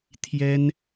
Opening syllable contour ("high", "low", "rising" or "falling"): high